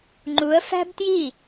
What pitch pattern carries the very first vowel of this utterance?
rising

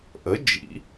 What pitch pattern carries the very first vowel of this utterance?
rising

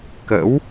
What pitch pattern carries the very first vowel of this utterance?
rising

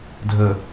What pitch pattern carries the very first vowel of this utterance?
low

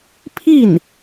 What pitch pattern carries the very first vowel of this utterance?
falling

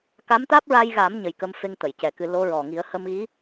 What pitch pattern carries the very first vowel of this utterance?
rising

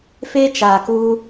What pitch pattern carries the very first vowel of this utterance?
high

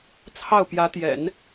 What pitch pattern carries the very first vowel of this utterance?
falling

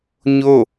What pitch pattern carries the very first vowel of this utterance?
falling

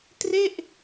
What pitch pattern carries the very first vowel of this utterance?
falling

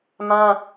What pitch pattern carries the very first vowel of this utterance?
high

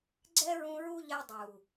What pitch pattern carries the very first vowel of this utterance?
high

